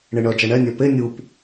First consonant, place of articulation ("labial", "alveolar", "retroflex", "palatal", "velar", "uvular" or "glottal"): retroflex